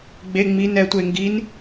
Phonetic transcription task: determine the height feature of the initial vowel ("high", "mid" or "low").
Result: mid